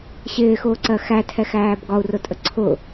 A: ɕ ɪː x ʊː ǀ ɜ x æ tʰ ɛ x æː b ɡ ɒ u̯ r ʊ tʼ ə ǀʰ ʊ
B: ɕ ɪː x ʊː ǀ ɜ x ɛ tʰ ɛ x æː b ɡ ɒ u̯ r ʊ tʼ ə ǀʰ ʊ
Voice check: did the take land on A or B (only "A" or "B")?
A